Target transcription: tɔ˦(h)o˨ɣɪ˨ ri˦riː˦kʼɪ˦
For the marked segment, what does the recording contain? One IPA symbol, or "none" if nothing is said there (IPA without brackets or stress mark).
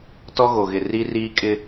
ɣ